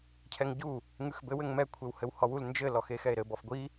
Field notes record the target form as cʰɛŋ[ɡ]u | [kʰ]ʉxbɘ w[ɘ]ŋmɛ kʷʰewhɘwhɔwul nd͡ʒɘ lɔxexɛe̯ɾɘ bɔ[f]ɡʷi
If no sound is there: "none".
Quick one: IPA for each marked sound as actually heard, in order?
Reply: ɟ, ŋ, ɘ, f

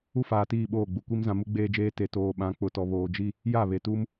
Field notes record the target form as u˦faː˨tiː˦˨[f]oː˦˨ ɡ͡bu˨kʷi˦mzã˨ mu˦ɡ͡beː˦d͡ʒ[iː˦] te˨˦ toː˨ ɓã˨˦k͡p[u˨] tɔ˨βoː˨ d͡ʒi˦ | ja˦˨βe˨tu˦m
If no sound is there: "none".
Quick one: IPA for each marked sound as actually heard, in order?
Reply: ɓ, eː˦, ʊ˨

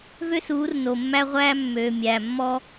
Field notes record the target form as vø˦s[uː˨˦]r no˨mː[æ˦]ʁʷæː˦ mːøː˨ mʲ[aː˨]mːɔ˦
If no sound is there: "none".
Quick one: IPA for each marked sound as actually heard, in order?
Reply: uː˨˦, æ˦, æː˨

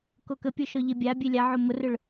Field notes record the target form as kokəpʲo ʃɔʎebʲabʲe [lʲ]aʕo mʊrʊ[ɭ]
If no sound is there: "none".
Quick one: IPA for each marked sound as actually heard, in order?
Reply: lʲ, ɭ

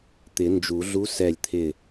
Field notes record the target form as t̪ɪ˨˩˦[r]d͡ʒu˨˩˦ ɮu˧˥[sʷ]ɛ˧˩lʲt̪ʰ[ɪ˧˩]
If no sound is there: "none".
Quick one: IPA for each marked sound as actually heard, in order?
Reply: n, s, ɪ˧˩

